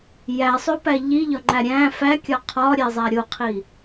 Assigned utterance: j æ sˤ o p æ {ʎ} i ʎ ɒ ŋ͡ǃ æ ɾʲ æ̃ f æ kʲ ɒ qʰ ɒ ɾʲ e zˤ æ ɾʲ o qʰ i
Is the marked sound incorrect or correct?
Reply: correct